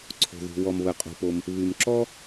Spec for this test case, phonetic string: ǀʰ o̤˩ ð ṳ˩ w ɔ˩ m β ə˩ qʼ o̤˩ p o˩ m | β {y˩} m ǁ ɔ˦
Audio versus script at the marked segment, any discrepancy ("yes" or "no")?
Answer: no